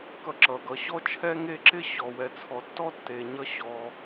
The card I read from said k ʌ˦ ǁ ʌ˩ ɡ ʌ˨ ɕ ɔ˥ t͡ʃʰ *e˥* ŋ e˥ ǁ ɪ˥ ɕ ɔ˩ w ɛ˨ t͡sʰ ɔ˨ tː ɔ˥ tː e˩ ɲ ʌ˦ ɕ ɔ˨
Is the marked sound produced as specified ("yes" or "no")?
no